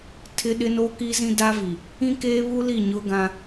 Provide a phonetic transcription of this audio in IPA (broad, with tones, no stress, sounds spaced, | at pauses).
tʰ ɪ˦ ɗ ɪ˦ n oː˦ k i˦ z ĩ˦ d a˦ v i˨ | ĩ˦ k eː˦ β u˦ l i˦˨ ɲ ʊ˦ ɡ ã˦